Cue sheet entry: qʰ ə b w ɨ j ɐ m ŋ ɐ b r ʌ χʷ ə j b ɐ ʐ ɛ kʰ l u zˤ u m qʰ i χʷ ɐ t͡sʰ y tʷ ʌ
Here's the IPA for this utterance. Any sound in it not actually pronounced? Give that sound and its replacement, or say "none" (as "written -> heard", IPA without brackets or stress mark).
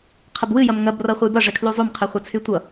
none